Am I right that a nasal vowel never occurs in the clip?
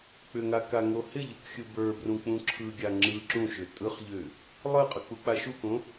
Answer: no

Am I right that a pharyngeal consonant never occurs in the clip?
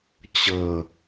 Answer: yes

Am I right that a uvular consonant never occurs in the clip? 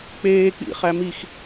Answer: no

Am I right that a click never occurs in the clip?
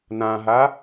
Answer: yes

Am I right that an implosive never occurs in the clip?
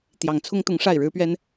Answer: yes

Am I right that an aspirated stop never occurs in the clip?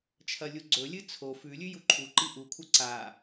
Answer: no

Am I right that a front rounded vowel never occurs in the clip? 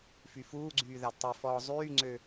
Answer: no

